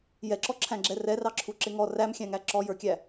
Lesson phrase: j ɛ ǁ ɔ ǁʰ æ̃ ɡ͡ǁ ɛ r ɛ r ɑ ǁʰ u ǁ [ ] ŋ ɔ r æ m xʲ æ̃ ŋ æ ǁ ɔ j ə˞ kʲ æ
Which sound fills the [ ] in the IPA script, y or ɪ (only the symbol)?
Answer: ɪ